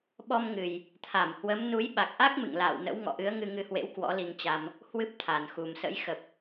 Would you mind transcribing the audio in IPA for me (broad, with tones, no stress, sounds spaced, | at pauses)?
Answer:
ɓ ɔ˧ m ŋ ɨ˨˩ j | t̪ʰ a˧˩ m h w ə˨˦ m n u˨˦ j ɓ a˨˩ k̚ ʔ a˦˥ k̚ m ɨ̰˧˨ ŋ l a̰ː˧˨ w n ə̰˧˥ w ŋ ɔ̰˧˨ ʔ ɨ˨˦ ə̯ ŋ ɨ˧ ŋ ɨ˧ h w ḛ˧˥ w k w ɔ̰˧˥ l i˧ ŋ t͡ɕ a˧ m | h w ɨ˦˥ p̚ t̪ʰ a˨˩ n x u˨˩ m s ə̰˧˥ j x ə˨˩ p̚